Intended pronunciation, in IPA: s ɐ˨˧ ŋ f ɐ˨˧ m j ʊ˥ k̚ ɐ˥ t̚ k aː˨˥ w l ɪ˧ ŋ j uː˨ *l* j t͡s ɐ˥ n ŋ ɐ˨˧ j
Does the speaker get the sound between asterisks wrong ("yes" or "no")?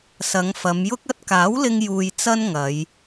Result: yes